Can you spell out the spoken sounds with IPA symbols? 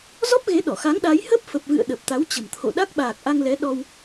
z ɔ˦˥ p̚ ɣ e˨˦ ɗ ɔ˧˩ x a˨˦ ŋ ɗ a˨˦ j h ə˦˥ p̚ f ə˨˩ p̚ v ɨ̰˧˨ ə̯ ɗ ə˨˩ p̚ t̪ a˨˦ w t͡ɕ ə̤˨˩ m t̪ʰ o̰˧˨ ɗ a˦˥ k̚ ɓ aː˨˩ k̚ ʔ a˧ ŋ l ɛ˨˦ ɗ ɔ˧ w

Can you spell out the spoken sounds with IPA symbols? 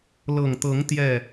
l ɤ˨˩ ŋ t̪ ɤ˨˦ ŋ t̪ j ɛ˥˨

